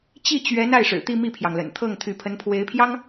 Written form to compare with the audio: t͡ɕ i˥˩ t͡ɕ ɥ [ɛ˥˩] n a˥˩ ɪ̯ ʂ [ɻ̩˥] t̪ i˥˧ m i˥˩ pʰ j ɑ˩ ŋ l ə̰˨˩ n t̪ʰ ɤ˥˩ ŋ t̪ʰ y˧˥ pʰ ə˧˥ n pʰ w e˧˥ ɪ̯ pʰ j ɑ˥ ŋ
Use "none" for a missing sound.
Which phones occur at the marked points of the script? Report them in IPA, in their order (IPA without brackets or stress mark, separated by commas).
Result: ɛ˧˥, ɻ̩˨˩